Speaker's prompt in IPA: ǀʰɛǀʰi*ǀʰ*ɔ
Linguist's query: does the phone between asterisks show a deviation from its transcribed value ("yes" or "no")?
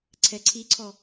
no